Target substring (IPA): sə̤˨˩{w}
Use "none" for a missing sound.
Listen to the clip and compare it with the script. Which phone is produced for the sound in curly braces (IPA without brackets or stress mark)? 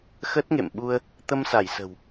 w